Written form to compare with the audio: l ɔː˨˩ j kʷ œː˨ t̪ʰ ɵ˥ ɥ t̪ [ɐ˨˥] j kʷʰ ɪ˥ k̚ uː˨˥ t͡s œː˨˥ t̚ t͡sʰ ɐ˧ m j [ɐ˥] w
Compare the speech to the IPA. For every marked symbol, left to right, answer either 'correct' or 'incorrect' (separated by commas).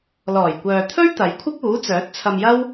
correct, correct